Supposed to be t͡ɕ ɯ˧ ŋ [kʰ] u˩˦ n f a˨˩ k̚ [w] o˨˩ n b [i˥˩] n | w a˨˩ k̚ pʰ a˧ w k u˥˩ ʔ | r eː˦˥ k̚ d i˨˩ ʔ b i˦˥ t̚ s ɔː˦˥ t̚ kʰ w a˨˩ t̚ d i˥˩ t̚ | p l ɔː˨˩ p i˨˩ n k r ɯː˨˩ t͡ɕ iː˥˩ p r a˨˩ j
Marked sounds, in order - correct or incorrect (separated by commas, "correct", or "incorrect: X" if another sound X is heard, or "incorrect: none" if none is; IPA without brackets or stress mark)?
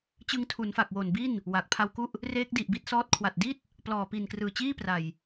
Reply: incorrect: tʰ, correct, correct